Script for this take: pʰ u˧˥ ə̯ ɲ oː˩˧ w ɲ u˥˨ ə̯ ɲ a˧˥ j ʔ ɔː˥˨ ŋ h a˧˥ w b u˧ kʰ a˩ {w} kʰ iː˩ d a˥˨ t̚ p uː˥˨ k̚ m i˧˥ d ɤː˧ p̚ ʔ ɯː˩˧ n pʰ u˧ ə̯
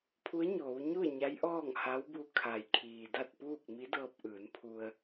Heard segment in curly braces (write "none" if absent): j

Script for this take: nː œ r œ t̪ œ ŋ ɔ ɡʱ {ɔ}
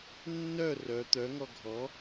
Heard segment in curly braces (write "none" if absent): ɔ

